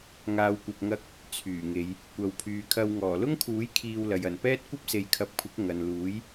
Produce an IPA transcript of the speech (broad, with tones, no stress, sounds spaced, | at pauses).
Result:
ŋ aː˨ w kʷ ɐ˨ p̚ ŋ ɐ˧ k̚ | t͡sʰ yː˨˩ ŋ e˨˧ j | kʷ ɐ˨ w pʰ yː˨ kʰ ɐ˧ w ŋ ɔː˨˩ l ʊ˥ ŋ kʰ uː˨˥ j kʰ iː˧ w l ɐ˨ j ɐ˨˩ n p ɛː˥ t̚ kʷ ɐ˥ p̚ s e˨˧ j kʰ ɐ˨˥ p̚ kʷʰ ɪ˨˥ k̚ ŋ ɐ˨ n l uː˨˥ j